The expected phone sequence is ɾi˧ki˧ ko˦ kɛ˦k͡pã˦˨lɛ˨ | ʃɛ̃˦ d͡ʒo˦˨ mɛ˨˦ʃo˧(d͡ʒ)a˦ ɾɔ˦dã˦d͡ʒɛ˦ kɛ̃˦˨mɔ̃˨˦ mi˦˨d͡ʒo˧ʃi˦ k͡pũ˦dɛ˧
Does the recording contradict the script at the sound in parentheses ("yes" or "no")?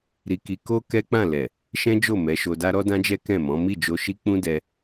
yes